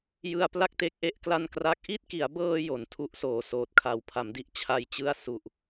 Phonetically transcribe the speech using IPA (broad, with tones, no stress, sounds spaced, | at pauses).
j ɯ˧ a̯ p l a˥˩ k̚ t e˦˥ k̚ ʔ e˦˥ ʔ k l a˥˩ n k r a˥˩ k̚ ʔ i˥˩ t̚ k i˩˦ a̯ b ɤː˧ j o˩˦ n tʰ u˦˥ ʔ s oː˩˦ s oː˨˩ t̚ kʰ a˨˩ w pʰ a˩˦ m d i˦˥ ʔ t͡ɕʰ a˧ j t͡ɕ ɯ˥˩ a̯ s u˨˩ ʔ